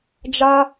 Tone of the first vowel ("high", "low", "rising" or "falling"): high